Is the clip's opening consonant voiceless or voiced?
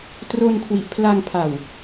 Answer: voiceless